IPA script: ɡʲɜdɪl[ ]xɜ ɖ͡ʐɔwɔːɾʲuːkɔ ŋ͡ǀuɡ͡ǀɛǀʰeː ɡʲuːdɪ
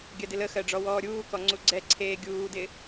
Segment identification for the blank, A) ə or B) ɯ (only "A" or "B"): A